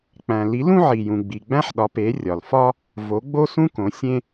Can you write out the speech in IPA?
k͡p æ̃˨ l i˨˦ l ũ˥ ʕ i˨ j ũ˨ ɡ͡b i˨ ɡ͡b æ̃˥ ħ ɗ ɒ˨˦ p e˨˦ rʲ ɒ˨ l f ɒ˥ | v o˨˦ ɡ͡b o˥ s ũ˥ k õ˨˦ sʲ ẽ˥

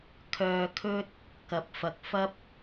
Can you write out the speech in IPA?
kʰ œː˨ kʰ ɵ˧ t̚ | k ɐ˨˥ p̚ f ɐ˨ k̚ f ɐ˥ p̚

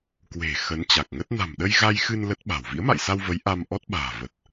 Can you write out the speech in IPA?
k w e̤˨˩ x ə˨˦ n t͡ɕ a˨˩ k̚ ŋ ə˦˥ t̚ n a̤˨˩ m ɗ ə˧ j ɣ a˧ j x ɨ˧ n l ə˦˥ t̚ ɓ a̤˨˩ w v ḭ˧˥ ə̯ m a̰˧˨ j s a˧ w v ə˨˦ j ʔ a˧ m ʔ ɔ˦˥ t̚ ɓ a̤ː˨˩ v ə˨˩ t̚

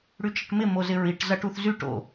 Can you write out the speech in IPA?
ɽ y t͡ʃ ɐ ʈ m ɪ m o z ɪ ɹ i ʈ z ɐ ʈ u θ z y ʈ o̰

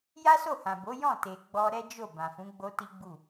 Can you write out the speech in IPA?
j a˦ s o˦˨ h ã˨ b o˨˦ j ɔ̃˦˨ t e˨ ɡ͡b ɔ˧ ɾ ɛ˦ d͡ʒ o˦˨ b ã˨ f ũ˨˦ ɡ͡b o˦ t i˦ ɡ͡b u˦˨

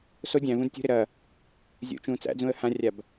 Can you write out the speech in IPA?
s o dʲ æ̃ v ũ d tʲ ṳ ɾ ɪ ɾ ɐ | zʲ ṵ t͡ʃ ũː t͡s æ̰ d͡z ũ ə̯ h ã rʲ a b

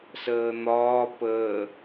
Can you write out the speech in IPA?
s əː n̪ ɒː p əː

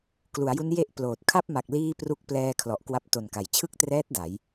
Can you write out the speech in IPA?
k l u˩˦ a̯ j u˦˥ n j e˥˩ ʔ p l oː˨˩ t̚ kʰ a˥˩ p̚ m a˨˩ k̚ l iː˥˩ p r u˥˩ k̚ p l ɛː˧ kʰ l ɔ˨˩ ʔ k w a˦˥ p̚ t o˨˩ n k a˩˦ j t͡ɕʰ ɯ˥˩ k̚ t r ɛː˦˥ t̚ d a˩˦ j

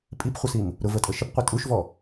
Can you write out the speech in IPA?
pʼ i p χʷ ə s i m | ɾ ʊ v ə tʼ ə ʃ ə p qʷ ɛ tʼ u ʃ v ɔ

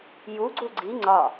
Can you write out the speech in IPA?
j u ɡ͡ǀ u ɡ͡ǀ i ŋ͡ǀ ɒ

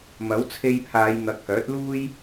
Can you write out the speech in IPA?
m ɐ˨˥ w t͡sʰ e˧ j pʰ aː˨˧ j n̪ ɐ˨˥ k̚ h œː˨˥ t̚ l uː˥ j

